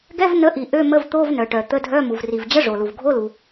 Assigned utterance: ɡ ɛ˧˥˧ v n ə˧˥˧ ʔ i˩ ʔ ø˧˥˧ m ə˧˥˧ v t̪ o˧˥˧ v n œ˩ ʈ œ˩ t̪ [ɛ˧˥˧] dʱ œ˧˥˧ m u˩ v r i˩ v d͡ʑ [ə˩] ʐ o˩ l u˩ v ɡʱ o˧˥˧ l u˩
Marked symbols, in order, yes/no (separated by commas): no, no